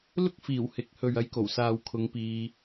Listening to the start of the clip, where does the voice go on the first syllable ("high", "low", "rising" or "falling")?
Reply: high